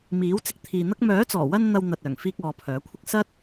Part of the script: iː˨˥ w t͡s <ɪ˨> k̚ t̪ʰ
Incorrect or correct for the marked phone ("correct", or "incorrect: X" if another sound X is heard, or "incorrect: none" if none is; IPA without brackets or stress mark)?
correct